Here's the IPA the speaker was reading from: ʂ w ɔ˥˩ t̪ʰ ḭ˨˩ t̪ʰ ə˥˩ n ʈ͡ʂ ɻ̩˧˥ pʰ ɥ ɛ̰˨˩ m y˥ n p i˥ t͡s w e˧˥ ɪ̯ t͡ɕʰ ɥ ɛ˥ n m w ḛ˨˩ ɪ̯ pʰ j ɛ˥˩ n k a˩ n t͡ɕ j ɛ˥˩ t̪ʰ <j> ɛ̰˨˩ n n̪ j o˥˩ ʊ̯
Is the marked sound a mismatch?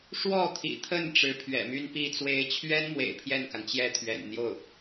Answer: yes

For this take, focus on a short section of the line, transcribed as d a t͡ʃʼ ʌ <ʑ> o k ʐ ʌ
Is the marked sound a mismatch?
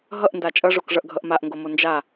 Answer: yes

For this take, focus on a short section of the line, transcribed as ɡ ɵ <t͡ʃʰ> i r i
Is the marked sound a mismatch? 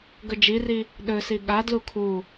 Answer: yes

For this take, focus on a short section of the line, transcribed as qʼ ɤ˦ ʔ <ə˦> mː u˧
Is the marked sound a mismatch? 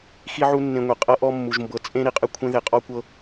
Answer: yes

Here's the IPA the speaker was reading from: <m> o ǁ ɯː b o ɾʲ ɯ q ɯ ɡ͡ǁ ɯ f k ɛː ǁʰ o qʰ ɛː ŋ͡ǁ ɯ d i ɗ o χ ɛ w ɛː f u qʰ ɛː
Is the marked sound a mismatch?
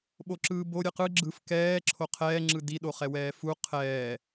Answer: yes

